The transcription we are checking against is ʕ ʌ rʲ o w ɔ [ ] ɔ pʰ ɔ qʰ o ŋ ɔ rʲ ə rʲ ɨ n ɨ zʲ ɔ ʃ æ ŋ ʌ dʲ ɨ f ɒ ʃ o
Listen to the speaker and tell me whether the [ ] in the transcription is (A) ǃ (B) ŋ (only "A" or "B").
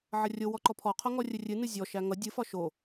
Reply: A